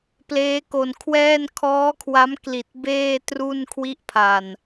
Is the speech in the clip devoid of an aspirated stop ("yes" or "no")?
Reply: no